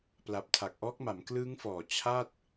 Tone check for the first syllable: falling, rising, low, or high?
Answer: low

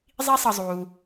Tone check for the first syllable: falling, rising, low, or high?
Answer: high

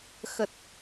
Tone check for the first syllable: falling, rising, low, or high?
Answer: low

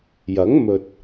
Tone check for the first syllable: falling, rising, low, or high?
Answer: rising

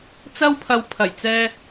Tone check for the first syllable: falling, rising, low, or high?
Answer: high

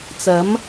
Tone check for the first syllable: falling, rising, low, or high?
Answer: rising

